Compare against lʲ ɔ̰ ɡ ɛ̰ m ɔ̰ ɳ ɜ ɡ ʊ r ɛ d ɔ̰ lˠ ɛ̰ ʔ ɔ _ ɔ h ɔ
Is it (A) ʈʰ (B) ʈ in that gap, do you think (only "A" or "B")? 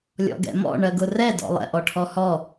A